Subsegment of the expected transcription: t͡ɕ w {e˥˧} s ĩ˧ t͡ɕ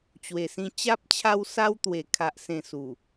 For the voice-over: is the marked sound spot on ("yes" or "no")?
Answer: no